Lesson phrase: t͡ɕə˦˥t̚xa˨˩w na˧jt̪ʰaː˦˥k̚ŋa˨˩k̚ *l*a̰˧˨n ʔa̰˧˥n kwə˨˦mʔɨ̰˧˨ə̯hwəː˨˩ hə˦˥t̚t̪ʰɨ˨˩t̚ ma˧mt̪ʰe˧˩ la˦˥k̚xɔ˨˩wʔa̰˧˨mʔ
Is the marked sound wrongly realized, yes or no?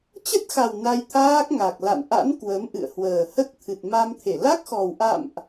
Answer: no